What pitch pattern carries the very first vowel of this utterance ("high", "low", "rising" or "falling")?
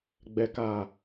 low